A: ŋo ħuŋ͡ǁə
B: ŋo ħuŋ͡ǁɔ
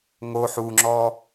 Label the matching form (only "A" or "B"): B